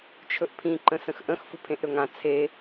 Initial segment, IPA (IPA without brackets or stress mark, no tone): t͡ʃʰ